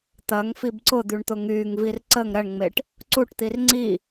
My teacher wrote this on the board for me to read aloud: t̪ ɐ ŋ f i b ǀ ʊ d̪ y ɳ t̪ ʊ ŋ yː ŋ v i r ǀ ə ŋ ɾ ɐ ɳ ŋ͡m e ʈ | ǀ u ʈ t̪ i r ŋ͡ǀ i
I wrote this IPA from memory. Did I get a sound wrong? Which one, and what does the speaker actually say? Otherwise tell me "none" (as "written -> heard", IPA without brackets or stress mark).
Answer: none